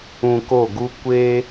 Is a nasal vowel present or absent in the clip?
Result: present